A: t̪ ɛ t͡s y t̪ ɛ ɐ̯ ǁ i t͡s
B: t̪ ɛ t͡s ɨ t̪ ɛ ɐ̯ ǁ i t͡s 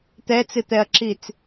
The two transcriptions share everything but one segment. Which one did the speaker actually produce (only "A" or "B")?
B